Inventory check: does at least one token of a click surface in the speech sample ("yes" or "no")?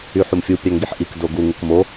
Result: no